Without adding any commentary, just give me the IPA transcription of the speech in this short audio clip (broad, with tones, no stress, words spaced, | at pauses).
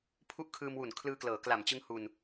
pʰu˦˥ʔkʰɯː˧mwu˨˩n kʰlɯː˧klɤː˩˦ kla˨˩mt͡ɕɯ˦˥ŋhu˧n